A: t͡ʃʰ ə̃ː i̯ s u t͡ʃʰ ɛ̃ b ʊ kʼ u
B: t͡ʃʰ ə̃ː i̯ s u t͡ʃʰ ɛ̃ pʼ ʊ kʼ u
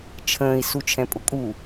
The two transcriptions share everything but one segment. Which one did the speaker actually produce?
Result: B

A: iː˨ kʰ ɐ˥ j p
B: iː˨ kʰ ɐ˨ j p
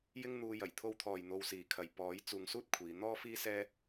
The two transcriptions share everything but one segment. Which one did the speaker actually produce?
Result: B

